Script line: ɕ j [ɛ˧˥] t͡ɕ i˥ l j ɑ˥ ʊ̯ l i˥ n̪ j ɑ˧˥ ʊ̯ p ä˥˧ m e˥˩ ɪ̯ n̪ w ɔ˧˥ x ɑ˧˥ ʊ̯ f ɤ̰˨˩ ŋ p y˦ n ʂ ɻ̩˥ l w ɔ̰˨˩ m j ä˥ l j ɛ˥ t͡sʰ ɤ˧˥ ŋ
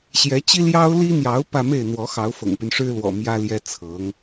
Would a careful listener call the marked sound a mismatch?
no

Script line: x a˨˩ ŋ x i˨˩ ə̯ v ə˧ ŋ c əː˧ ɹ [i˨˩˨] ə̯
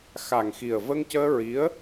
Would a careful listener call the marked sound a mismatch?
yes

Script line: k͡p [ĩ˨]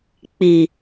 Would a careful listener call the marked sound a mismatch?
yes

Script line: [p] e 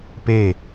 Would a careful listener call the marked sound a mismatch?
no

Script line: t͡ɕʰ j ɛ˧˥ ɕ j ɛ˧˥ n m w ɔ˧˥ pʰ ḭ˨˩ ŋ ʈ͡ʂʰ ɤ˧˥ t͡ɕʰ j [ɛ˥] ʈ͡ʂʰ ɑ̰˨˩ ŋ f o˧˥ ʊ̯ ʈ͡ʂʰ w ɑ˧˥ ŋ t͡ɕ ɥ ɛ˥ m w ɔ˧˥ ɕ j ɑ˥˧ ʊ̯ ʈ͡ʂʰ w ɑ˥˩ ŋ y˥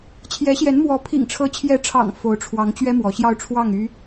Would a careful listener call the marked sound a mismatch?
yes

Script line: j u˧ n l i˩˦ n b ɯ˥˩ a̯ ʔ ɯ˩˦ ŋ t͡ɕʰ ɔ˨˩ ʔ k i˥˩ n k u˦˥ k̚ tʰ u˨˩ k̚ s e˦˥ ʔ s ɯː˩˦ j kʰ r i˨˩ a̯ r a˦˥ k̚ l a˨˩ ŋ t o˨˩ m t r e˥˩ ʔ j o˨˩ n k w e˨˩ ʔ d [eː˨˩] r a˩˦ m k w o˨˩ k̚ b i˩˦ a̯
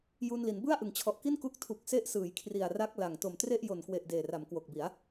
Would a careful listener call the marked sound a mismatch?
no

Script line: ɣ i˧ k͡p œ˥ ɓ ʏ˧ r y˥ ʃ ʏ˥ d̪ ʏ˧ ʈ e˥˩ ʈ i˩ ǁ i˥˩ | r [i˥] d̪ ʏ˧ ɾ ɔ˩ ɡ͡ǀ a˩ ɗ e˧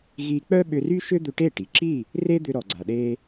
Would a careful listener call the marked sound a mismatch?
yes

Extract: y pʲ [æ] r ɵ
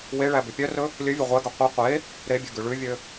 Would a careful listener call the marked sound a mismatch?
yes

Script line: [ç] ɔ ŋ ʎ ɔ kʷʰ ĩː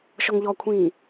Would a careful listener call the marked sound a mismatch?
yes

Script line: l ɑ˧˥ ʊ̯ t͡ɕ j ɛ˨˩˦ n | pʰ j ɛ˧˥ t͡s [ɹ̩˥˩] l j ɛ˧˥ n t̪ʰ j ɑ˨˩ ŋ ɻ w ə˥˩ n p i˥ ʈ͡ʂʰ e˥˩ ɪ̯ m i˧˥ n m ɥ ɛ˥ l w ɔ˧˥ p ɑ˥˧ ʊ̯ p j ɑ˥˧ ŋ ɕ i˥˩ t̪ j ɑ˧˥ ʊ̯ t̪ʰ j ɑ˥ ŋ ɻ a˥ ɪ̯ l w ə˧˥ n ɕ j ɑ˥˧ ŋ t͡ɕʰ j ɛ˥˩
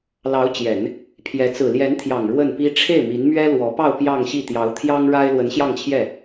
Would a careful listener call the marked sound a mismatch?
yes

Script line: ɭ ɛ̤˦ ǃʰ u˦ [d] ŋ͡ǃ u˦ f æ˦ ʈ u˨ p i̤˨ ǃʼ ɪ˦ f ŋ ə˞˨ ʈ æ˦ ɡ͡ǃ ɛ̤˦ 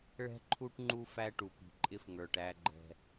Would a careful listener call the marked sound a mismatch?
yes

